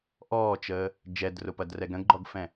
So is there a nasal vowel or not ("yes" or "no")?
yes